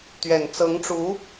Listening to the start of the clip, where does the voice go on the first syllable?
low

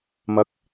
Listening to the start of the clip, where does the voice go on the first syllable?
rising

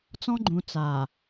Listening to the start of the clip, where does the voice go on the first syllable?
high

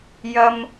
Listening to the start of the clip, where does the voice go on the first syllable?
high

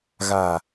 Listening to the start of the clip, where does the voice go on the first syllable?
low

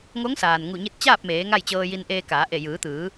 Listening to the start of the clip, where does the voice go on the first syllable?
rising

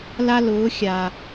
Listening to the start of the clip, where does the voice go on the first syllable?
high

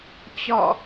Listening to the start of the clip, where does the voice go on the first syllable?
falling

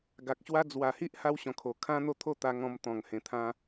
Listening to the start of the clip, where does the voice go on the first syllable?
low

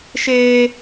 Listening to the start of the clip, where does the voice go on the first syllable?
high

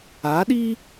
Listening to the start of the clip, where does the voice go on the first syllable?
rising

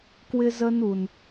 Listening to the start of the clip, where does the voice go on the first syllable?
high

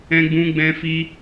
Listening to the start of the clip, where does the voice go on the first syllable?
high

